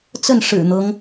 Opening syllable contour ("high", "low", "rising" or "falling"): falling